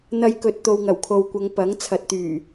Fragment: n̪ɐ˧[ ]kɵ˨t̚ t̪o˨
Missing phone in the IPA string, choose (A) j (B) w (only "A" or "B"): A